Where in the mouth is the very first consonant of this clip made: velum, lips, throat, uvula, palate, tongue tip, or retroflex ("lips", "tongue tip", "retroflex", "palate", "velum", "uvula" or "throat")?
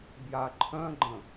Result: lips